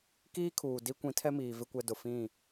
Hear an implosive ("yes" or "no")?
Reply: no